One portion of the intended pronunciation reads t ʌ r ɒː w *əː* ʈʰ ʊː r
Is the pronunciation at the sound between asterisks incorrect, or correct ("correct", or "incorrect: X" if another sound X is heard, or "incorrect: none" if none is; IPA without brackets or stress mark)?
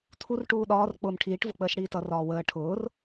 correct